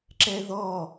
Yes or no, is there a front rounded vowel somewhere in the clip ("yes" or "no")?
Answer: no